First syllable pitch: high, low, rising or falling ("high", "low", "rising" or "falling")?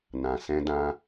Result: low